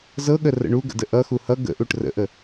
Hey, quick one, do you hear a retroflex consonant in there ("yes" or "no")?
yes